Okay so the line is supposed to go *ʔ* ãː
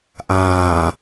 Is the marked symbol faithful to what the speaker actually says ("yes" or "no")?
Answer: yes